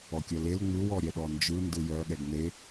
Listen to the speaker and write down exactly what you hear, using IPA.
ɔ kʲ œ l e l ŋ͡m ɯ w ɔ ɾʲ ɛ ɗ ɔ n d͡ʒ ɯ n d ɯ j œ ɠ ɛ ɡ n e

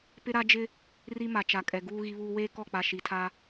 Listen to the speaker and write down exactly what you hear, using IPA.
p ɪ˦ ɾ a˦ d͡ʒ ɪ˦ | r i˦ m a˨ t͡ʃ a˨ kʼ ɛ˨ ɡ uː˦ ɣ i˦ β uː˦ w eː˦ k ɔ˦˨ k͡p a˨ ʃ i˨ tʰ a˦

